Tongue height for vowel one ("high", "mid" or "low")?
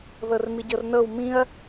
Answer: mid